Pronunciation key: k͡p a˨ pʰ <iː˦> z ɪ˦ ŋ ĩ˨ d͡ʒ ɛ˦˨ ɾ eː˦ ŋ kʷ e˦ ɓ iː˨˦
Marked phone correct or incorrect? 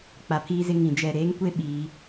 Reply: correct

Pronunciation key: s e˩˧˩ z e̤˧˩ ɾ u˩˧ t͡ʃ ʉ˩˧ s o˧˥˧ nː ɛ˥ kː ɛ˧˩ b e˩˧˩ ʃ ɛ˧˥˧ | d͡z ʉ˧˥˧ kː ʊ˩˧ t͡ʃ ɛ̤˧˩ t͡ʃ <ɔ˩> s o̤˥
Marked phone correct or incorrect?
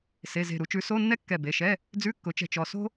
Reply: correct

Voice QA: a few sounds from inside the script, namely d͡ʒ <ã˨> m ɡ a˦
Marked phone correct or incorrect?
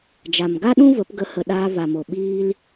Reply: incorrect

